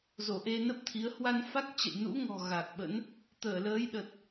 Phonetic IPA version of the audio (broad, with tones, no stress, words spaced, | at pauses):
zo˧˩ʔe˧nə˦˥p̚t̪ʰi˨˦ə̯ hwa˧nfa˦˥k̚t͡ɕə̰˧˨j nṵ˧˥ŋɔ̤˨˩ ɣa˨˩k̚ɓə̰˧˥n | t̪əː˧˩ləː˨˦jɗə˨˩t̚